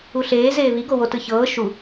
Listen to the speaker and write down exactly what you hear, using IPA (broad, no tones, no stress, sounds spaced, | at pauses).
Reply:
u ɬ eː z eː β i ɡ o w o t ɯ ç ɤː ʃ u